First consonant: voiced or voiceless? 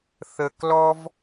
voiceless